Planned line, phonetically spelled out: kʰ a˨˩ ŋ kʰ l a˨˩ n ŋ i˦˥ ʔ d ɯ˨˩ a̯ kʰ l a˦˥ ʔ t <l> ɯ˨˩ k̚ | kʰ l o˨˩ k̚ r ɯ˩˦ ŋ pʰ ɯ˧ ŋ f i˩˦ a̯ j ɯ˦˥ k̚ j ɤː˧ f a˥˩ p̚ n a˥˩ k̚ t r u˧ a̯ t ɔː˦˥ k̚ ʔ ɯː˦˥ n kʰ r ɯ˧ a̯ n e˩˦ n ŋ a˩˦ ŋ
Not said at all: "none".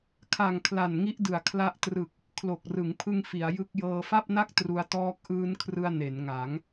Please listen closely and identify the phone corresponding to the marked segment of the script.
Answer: r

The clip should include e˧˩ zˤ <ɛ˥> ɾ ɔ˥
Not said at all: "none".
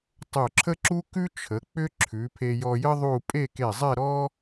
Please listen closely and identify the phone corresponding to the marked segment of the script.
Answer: ɛ˥˧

